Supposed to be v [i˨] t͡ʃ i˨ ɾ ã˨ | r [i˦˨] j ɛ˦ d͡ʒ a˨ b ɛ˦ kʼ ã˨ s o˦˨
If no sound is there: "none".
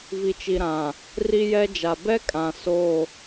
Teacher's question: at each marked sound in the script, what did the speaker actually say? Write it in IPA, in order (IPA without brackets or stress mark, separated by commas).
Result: i˨, i˦